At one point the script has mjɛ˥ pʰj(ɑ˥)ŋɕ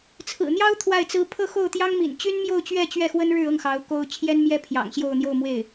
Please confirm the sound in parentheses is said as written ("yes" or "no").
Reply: no